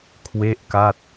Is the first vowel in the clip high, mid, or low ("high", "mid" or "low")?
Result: mid